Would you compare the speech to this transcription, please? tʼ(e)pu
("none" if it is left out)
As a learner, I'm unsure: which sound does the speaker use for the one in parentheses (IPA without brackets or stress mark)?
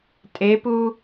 e